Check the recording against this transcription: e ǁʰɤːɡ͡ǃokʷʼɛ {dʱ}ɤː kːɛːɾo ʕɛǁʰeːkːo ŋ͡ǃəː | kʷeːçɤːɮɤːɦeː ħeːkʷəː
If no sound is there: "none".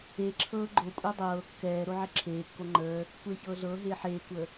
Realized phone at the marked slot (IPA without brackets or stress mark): dˤ